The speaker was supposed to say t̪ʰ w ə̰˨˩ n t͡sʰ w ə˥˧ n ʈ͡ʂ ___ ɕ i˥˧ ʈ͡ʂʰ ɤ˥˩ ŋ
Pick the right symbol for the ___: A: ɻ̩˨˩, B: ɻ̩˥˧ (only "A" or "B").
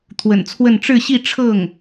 B